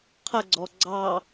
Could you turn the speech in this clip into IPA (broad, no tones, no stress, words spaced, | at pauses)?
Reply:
qʰəɡ͡ǀɔ ɡ͡ǀɑ